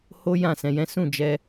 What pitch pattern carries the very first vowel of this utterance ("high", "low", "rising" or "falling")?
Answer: high